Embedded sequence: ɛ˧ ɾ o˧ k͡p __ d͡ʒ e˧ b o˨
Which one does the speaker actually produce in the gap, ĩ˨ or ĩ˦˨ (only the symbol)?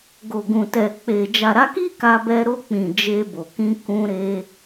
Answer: ĩ˨